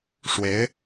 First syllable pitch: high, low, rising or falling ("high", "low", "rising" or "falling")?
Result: rising